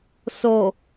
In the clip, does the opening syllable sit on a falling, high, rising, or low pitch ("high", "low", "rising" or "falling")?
low